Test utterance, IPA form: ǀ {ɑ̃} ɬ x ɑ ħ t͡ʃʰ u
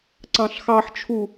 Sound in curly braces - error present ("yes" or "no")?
no